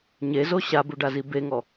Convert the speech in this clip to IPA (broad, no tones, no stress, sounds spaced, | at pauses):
ɲ e z o ɕ a b u ɖ a z i b e ŋ ɔ